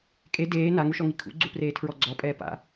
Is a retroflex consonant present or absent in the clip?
absent